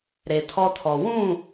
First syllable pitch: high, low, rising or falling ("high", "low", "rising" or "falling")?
low